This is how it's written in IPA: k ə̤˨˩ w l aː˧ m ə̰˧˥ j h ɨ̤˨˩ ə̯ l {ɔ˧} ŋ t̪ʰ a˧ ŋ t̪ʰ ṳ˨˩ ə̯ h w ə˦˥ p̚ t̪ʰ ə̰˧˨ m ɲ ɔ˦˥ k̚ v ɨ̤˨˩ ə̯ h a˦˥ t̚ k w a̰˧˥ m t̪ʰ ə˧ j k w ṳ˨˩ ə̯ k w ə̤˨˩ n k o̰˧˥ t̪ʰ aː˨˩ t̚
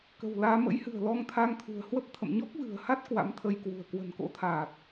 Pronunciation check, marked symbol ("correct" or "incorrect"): correct